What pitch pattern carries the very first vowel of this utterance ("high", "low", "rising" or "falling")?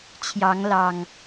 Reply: rising